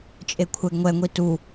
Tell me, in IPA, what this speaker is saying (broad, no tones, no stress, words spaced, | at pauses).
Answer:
t͡ʃʼekʷʰɛɡŋʷɛ ŋʷitu